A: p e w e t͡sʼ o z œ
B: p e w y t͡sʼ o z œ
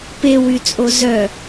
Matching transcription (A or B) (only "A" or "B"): B